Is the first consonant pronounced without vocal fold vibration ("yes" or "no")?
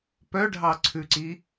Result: yes